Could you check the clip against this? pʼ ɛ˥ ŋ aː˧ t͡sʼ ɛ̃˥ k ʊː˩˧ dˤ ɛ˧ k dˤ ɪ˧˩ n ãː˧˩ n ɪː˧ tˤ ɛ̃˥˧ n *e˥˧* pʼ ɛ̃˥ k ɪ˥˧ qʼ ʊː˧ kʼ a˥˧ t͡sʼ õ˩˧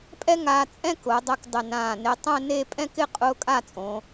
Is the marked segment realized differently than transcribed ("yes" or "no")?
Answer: no